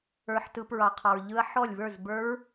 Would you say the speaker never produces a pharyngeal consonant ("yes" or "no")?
no